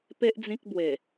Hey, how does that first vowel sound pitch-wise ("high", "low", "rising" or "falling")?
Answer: high